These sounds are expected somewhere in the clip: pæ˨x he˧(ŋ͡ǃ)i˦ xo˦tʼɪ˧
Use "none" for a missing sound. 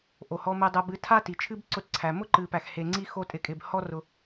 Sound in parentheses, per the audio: ŋ͡ǀ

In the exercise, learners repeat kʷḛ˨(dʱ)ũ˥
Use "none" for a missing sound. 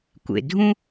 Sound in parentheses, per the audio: dʱ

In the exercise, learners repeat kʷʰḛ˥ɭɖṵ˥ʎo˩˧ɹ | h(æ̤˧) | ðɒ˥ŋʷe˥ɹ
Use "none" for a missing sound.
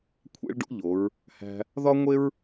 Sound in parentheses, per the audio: æ̤˧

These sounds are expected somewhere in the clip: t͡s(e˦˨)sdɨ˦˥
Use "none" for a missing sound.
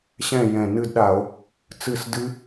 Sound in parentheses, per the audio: ɨ˦˨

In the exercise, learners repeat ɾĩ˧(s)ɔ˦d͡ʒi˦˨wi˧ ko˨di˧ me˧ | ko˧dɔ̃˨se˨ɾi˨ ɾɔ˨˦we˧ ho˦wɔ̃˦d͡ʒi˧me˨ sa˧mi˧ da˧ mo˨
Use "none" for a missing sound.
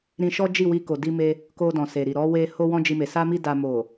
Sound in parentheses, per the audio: ʃ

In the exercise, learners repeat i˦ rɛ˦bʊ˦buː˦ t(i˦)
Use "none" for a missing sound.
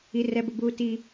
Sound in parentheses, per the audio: i˦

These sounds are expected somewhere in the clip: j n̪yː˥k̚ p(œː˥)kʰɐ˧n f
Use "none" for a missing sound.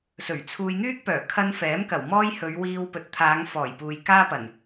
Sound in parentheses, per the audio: œː˨˩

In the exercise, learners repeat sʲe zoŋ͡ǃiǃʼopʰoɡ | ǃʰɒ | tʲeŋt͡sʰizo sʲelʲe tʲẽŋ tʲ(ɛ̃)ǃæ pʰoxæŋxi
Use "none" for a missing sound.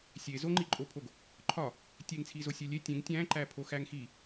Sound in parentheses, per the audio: æ̃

